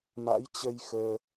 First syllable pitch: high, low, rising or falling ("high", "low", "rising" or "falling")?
rising